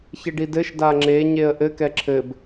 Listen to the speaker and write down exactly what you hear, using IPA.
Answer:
çeɖidɘʃ daŋ͡ǁe ɲeə̯ʔɘ kɛǁʰɘb

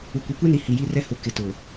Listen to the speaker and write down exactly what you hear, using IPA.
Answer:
u˨kʷi˨kʷe˦ni˨ hi˨ji˦rɛ˦ hʊ˨ kɪ˨tʊ˨

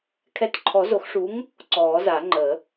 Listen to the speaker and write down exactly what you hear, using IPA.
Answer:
kʰɛ˨˥tǃʰɔ˨˩˦zo˨˩˦xʂuː˨˥ŋ | ǀɔː˨˩˦za˨˩˦ ŋ͡ǃə˨˩˦

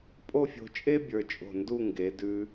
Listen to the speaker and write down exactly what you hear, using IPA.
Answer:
pʼo˥˧fʲo̤˧t͡ʃʼe˥ bʲə˞˧t͡ʃʼo̤˧˩ndu˥˧ ŋɡe˩˧dʉ˧

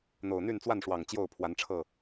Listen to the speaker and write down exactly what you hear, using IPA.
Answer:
n̪o˨˩ʊ̯n̪y˥˨nt͡swa˥˨nʂwɑ˨˩ŋ t͡ɕjo˥˨ʊ̯pʰwa˨˦nʈ͡ʂʰɤ˥˨

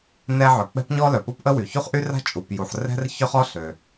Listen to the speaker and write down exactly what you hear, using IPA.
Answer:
nɛ˥ʕœ˩ k͡pɛ̤˥pɲɔ˥ lœ˩pɔ˥pʔə˥wy˩ çu˥χʔy˥ra̤˥ t͡ʃʼu˩pju˩ħrɛ̤˥r çœ˥χɔ˥ ɬø˩

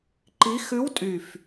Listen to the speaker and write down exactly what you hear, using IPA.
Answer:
ǃi˧˥ xʉ˧˥w tʼy˧˩f

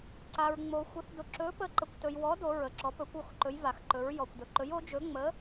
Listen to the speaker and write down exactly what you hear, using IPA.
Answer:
ǀa˧ɹŋ͡mo˧ xʷə˧˥θ dʊ˧ ǁɵ˧˥pə˧˥ ǃə˧kʷtɵ˧jwɔ˧˥ do˧˥ɹə˧ǁɔ˧˥ pɵ˧˥kʷo˧˥xǃɵ˧˥j va˧xǃɵ˧˥ɹjɔ˧kʷdɵ˧ ǃɵ˧˥jo˧˥ d͡ʒɵ˧˥ŋ͡mə˧˥

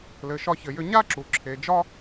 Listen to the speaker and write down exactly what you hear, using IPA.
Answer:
lɘ˩ʃɒ˧çɘ˩jʏ˧ ɲa˥ǁu˩ ǁʰe˩d͡ʒɒ˥

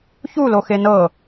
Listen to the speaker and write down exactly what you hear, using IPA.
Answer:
çulo xenɤ

